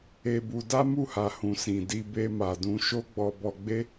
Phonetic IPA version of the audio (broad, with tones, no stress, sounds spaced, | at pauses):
e˧ b u˧ d a˦ m u˦˨ h a˨ h ũ˨ s ĩ˨ d i˧ b e˧ m a˨ d ũ˧ ʃ o˦ ɡ͡b ɔ˧ b ɔ˧ ɡ͡b e˦